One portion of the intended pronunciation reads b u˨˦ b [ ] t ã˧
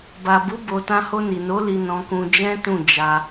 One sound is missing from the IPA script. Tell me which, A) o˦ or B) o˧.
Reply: B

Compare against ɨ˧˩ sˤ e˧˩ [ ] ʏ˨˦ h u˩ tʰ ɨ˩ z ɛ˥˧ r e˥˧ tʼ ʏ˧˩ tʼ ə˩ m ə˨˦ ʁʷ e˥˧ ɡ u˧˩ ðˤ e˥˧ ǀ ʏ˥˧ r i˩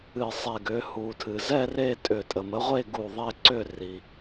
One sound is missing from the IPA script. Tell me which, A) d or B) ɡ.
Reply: B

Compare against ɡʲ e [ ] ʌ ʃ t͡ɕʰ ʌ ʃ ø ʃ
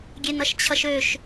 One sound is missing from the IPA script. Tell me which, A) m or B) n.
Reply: B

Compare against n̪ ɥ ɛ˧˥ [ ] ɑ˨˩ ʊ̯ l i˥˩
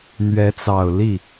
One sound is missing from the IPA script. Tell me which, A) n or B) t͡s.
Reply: B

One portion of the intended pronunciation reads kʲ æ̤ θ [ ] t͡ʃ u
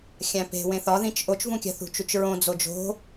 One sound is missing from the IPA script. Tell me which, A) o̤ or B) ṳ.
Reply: B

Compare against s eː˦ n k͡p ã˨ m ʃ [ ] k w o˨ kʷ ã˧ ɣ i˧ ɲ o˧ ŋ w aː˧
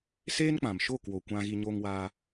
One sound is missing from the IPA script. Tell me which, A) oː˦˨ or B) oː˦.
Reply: A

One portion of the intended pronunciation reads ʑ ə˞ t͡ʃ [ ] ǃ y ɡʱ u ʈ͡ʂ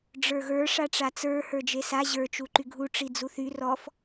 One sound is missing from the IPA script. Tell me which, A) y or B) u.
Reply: B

